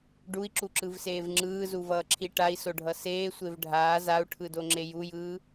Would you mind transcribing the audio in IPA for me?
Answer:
ɖui̯ǁuǁɯvseːv ŋ͡ǁɯːzuvʌːǁʰi ʈai̯soɖʱʌ seːsʷev ɖʱaː zau̯ʈʰɯdoŋ͡ǁe jujɯː

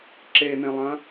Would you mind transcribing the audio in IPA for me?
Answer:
ǁen̪ẽlˠɐ̃

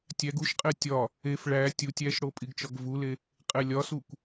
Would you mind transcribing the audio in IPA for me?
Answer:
tʲæɡ uʃqʼe tʲɒ | ef ɭæ tʲutʲ æʃɽo pʼiɡt͡ʃɒɡvule | qʼelʲɒsukʷ

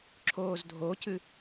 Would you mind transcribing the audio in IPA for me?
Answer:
ǁʰoːzdʱocɨ

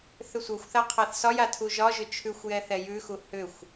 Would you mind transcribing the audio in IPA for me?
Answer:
θʏsʷɤxʷθa qʰaθsɒja tʰuʒɒʒʏ t͡ʃʰʉxʷjɛ θɛjʉxu hʏxʷ

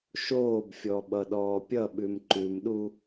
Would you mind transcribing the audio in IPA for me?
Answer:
ʃoːbfʲɔ ɓʌɗɔːpʲʌɓʉm ǃʉmɗu

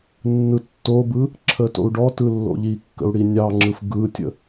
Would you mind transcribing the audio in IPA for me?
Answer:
nːɯtːobɯ | ǁʰəto̰u̯ɖɔtɯ lːo̰ʎikːə̰u̯ ɽinʲɑŋ͡ǁɯf ɡɯtʲə̰

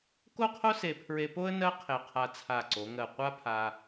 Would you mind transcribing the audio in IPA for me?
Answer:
ko˥˧qʰo˥se˧˩pʰɹe˧ po˥ə̯ nɜ˥ qʰe˧˩qʰa˧t͡sʰa˧˩ ǀo˩˧ŋɜ˧˩qʷa˥pʰa˧

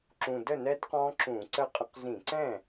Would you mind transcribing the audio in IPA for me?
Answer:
ǁũ˨˩ də˥˩nɛ˦˥d qɔ̃˦˥ǁũ˧˩˧ǀə˥˩qʼə̃˦˥q zĩ˧˩˧ǀɛ̃˥˩

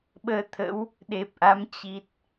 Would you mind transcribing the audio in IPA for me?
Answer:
ɓəː˧t̪ʰə̰˧˥w | ɗe˨˩p̚ʔa˨˦m t͡ɕi˨˩t̚

